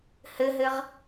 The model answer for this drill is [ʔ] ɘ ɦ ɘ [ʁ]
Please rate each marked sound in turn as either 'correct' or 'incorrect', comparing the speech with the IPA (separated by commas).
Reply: incorrect, correct